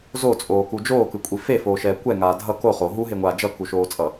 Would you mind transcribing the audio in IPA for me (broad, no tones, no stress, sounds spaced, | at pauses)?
z o t͡sʼ oː k u d͡ʒ oː k ɯ kʷʼ i f e f oː ʃ ɛː kʷ ɛ ŋ aː dʱ ʌ k o χ o ɦ u ɦ e ŋʷ aː d͡ʒ ʌ k u ʃ oː t͡sʼ ʌ